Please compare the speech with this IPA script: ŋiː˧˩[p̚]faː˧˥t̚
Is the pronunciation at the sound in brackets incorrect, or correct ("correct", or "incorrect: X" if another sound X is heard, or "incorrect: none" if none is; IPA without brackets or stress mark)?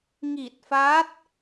incorrect: t̚